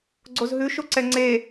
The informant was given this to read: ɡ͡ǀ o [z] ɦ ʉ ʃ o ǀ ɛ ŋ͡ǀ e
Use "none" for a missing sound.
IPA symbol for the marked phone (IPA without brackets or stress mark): z